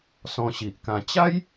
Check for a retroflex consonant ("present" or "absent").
absent